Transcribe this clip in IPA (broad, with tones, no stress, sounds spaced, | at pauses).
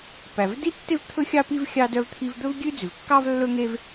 p æ˩ v d i˥ tː e˥ v t̪ʰ ɵ˥ xʲ ɑ˥ p i˥ v xʲ ɑ˥ d œ˥ v t̪ʰ i˥ v d̪ ɵ˥ v ɡʲ ʉ˥ d͡z ʉ˩ v kː ɑ˥ v lː ɵ˥ ŋ e˥ v